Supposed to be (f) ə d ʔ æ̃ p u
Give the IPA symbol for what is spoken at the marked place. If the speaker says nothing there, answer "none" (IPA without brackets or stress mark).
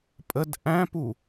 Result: pʼ